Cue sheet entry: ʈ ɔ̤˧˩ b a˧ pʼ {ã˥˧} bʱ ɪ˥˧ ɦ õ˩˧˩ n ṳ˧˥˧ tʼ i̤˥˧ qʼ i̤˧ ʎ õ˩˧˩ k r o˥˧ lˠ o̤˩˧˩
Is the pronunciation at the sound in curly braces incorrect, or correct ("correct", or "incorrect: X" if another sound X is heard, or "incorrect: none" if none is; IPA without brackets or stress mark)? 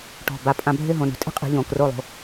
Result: incorrect: ã˧